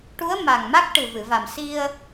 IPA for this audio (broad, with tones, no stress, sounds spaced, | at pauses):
ʈ u˧˥ ə̯ m a˨˩ ŋ m a˦˥ k̚ ʈ ɨ˨˩ v ɨ˨˩˨ v a˨˩ m s i˧ ə̯